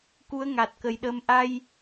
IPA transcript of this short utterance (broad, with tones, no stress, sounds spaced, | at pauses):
k u˧˥ ə̯ ŋ a˨˩ t̚ k ə˨˩ j ɗ əː˧ m ʔ a˧ j